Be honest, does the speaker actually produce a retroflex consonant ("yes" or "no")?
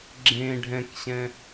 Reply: yes